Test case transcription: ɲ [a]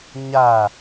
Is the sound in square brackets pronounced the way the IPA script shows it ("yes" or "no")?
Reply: yes